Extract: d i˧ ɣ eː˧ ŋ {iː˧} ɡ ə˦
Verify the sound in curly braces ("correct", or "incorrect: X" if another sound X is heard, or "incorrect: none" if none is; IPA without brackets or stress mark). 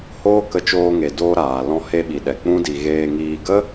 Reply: correct